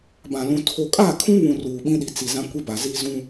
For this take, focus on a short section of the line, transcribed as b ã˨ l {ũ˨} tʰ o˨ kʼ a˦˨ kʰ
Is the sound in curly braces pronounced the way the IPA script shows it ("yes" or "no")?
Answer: yes